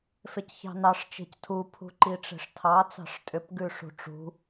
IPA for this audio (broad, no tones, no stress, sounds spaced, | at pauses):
f e c ç ɑ̤ n ɑ ʂ t͡ʃ e̤ c tʰ u pʰ ṳ ǃ i ʈ͡ʂ e̤ ʂ tʰ ɑ t͡s ɑ̤ ʂ tʼ ʏ p ɡ ʉ ʂ ṳ ʈ͡ʂ ṳ